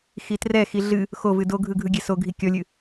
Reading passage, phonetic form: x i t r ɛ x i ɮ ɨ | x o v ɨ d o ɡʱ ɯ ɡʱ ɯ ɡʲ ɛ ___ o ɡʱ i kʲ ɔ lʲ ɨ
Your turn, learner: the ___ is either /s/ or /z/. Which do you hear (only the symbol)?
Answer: s